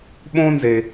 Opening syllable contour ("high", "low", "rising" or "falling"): high